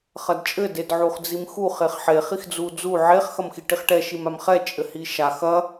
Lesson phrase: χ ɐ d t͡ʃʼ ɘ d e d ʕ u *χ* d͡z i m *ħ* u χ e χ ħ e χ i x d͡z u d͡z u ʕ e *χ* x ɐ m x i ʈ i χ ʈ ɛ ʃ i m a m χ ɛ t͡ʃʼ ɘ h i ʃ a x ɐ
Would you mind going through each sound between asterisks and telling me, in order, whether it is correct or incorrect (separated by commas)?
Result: correct, incorrect, correct